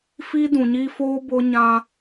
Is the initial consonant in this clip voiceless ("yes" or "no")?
yes